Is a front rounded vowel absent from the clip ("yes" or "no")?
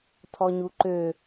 no